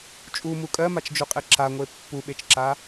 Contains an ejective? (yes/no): yes